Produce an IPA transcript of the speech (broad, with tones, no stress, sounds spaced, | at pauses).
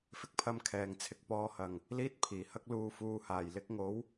f ɪ˧ k̚ pʰ ɐ˧ m kʰ ɛː˨ ŋ t͡sʰ ɪ˧ k̚ p ɔː˧ h ɐ˨ ŋ | l iː˥ t̚ pʰ iː˨˩ h ɐ˥ k̚ l uː˧ f uː˧ h aː˨˩ j l ɪ˧ k̚ ŋ o˨˥ w